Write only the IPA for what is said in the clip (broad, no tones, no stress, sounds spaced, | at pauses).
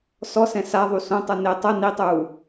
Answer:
s ɔ s ɛ̃ s a ðˤ u s õ tˤ ɯ n e tˤ ɤ n i tˤ uː